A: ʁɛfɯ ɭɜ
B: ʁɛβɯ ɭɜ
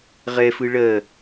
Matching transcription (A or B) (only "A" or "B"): A